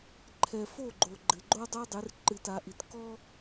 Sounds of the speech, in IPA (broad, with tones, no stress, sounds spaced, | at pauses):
ǃʰ ɛ˨ f o˦˨ ɡ͡ǃ o˨ ɡ͡ǃ ɘ˨ ɡ͡ǃ o˦ dˤ o˦ dˤ e˨˦ r ǃ ɨ˨ t a˨ ʔ i˨ t k ɔ˦